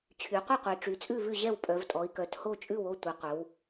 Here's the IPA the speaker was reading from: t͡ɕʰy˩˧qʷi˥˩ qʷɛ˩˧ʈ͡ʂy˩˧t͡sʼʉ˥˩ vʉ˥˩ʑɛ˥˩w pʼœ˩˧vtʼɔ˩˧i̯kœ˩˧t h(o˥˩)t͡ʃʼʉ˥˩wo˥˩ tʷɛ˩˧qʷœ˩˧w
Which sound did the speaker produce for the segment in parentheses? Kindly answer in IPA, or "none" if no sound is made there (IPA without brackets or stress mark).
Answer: o˥˩